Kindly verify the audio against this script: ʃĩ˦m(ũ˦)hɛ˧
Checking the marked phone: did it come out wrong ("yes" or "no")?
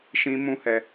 no